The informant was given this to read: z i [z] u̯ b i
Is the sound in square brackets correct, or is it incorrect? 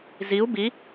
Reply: incorrect